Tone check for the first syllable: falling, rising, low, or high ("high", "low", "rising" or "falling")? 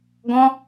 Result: high